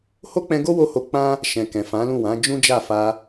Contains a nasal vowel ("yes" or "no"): yes